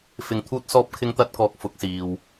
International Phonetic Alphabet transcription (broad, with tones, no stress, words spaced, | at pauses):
fɪ˧ŋt̪ʰuː˥t̚sɔː˥p̚kʰɪ˥ŋ t̪ɐ˥t̚kɔː˧k̚ fʊ˨˥k̚siː˨w